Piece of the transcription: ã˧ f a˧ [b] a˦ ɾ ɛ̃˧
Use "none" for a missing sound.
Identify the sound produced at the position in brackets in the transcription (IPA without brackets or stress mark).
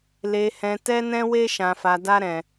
d